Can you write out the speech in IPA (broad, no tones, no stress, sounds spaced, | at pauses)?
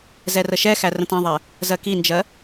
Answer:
z ɛ r ə ʃ ɛ x æ r ə̃ t ɛ̃ ðˤ ɛ | z ɜ k i n d͡ʒ ɜ